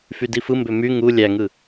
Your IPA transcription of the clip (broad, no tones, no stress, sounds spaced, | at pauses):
f y d i f ɯ m b ø m y ŋ u lʲ æ ŋ ɯ